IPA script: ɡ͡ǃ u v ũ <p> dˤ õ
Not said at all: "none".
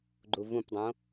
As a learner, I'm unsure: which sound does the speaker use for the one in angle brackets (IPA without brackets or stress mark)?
p